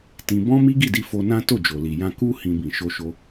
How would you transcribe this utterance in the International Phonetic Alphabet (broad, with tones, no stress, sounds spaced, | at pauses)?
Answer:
t ĩ˧ b ɔ̃˦ m i˦ ɡ i˦˨ d i˧ f o˧ n ã˦ t o˦˨ d͡ʒ o˨ l i˨ j ã˧ k u˦ h ĩ˧ b ĩ˨ ʃ o˧ ʃ o˧